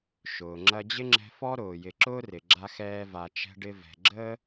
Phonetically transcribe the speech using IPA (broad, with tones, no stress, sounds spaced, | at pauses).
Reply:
ʃ ʊː˩ ŋ͡ǁ ɐ˦ d͡ʑ ɪ˥ ŋ͡ǁ ɛ̤˦ f ɔ˥ ɾ ʊː˩ j ɪ˨ ǁ ʊː˥ r ɪ˩ ɡ͡ǁ a˦ x ɛː˦ v a˨ t͡ʃ ɛ̤˦ ɖ ɪ˦ v ɛ̤˨ ɡ͡ǁ əː˥